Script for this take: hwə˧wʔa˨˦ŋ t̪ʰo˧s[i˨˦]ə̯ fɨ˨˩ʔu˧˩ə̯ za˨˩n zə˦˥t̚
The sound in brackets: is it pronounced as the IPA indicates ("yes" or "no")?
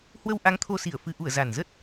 no